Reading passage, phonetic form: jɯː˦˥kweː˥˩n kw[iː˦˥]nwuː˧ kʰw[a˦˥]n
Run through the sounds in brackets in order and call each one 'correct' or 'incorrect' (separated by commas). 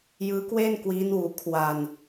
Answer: correct, incorrect